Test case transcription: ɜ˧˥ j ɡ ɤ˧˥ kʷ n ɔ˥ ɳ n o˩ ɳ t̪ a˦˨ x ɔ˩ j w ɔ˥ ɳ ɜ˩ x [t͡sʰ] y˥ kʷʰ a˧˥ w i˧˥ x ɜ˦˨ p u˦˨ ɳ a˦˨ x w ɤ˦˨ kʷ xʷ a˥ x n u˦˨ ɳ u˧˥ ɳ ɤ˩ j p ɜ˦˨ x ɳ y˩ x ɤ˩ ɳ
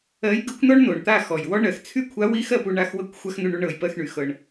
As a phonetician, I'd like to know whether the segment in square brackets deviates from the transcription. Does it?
no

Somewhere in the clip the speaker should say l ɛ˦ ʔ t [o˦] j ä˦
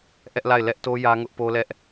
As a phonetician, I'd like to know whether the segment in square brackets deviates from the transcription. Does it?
no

